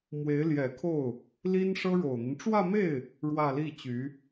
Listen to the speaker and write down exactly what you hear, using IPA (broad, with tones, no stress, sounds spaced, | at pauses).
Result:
m w e˧˥ ɪ̯ l j ɛ˨˩ kʰ o˥˩ ʊ̯ | l i˥ n ʂ ɤ˥ ɻ o˨˩ ʊ̯ n̪ i˦ n ʈ͡ʂ w ä˥˧ m e˥˩ ɪ̯ | ɻ w ä˥˧ l i˥˩ t͡ɕ y˧˥